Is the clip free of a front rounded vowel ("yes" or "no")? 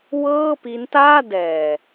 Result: yes